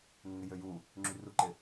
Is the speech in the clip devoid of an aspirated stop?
yes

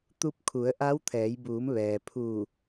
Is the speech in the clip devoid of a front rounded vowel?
yes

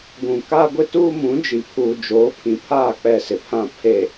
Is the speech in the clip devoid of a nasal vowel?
no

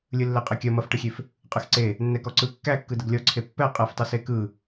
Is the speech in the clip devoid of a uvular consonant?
no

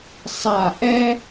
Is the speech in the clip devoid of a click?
yes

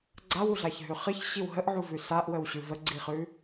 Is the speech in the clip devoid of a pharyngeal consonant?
no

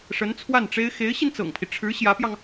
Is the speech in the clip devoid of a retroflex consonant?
no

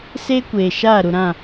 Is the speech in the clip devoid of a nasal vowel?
no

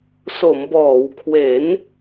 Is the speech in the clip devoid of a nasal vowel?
yes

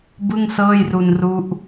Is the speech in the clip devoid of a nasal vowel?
yes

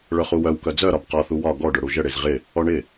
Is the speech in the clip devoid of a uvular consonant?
no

